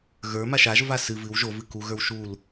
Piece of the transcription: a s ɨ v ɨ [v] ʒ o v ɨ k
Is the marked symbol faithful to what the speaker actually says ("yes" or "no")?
no